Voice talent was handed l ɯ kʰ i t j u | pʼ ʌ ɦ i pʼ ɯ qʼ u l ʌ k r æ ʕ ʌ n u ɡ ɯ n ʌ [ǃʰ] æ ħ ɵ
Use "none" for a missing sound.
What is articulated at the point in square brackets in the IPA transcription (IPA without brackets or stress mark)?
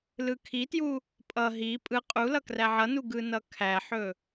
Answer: kʰ